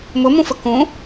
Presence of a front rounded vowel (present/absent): absent